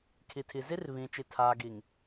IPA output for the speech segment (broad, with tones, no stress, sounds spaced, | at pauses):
kʰ i˨ tʰ i˨ z i˦ r β ĩ˨ t͡ʃ i˨ tʰ a˨ ɡ i˨ ŋ